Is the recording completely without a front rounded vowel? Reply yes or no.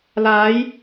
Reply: yes